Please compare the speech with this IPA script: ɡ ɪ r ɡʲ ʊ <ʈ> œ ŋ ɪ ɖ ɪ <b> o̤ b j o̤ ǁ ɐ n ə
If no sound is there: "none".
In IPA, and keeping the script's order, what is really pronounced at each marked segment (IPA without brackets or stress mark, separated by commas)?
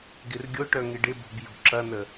ʈ, b